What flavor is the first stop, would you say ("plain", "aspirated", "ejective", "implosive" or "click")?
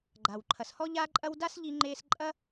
click